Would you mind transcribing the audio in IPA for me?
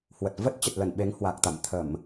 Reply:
h w ə˨˩ t̚ v ə˦˥ t̚ t͡ɕ ə˨˩ t̚ l ə˧˩ n ɓ e˨˦ ŋ h w a˨˩ k̚ t̪ a̰˧˨ m t̪ʰ ə˧˩˨ m

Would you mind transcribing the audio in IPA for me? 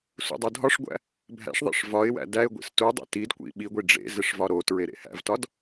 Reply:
s ṵ dˤ u dʱ ɒ ʂ ɡʷ æ̰ | bʱ æ̰ ʂ ðˤ ḭ ʂ v ɒ ɪ̯ w æ̰ d æ ɪ̯ ɡʷ ḭ s t u dˤ ḛ t i d kʷ ḭ ɓ i ɡʷ i ɖ͡ʐ ḛ z e ʂ v ɒ ɾ o t ɹ e ɾ ḛ h æ̰ v t ɒ d

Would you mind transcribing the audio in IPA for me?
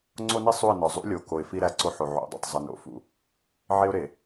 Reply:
ŋ͡ǀ o˦ n i˦ sˤ u˦˨ ɪ̯ n ɒ˨ zˤ ṵ˦ lʲ o˨ k o˨ ɪ̯ f i˦ ɾ æ˦˨ ǀ o˦ ħ o˨ ʕ o̰˨˦ dˤ ṵ˨ tˤ zˤ e˨ n o̰˨ f ṵ˨ | ʕ e˦ ʊ̯ ɾ e˨

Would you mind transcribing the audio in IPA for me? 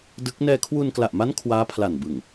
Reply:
d ɯ˦˥ k̚ n ɛː˧ kʰ w u˧ n k l a˨˩ ʔ m a˦˥ n kʰ w aː˦˥ pʰ l a˨˩ n b ɯ˨˩ ŋ

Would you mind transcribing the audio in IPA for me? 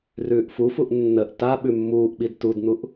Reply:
r ʉː ʔ f u f u ʔ nː ə ʔ t a ɓ ʉ mː uː ʔ ɓ i d t u d n̪ u ʔ

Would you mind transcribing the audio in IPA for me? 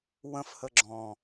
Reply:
w ə̃ f h ə ɡ͡ǁ ɔ̃

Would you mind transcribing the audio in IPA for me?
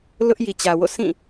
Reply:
l ʊ˦ ʔ j i˨ t͡ɕ ä˨ w o̰˦˨ sʰ ĩ˦˨

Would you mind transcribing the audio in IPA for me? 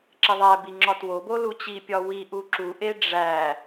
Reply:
ǁ e ðˤ æ b i ŋ͡ǁ ɒ t w o b o l u t͡ɕ i pʲ ɒ w i ʔ u ǁ u ʔ e ɖ͡ʐ æ

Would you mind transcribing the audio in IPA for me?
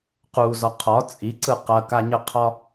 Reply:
q u z ɒ qʰ ɒ t͡sʼ i ǀ ɯ q ɐ k a ɲ ə qʰ ɒ

